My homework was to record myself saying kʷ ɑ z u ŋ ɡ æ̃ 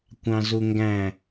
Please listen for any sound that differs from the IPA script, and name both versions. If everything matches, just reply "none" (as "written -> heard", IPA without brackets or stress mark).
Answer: ɑ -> ɑ̃